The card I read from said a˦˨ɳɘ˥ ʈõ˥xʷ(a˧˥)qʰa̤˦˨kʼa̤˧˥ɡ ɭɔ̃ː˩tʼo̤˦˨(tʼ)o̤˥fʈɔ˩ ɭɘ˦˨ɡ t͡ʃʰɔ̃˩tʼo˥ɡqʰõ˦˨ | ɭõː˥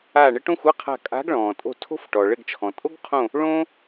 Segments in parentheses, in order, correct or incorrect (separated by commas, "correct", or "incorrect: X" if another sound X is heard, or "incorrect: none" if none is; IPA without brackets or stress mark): incorrect: a˧˥˧, incorrect: tʰ